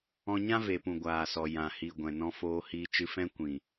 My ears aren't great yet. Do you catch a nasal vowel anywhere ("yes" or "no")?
yes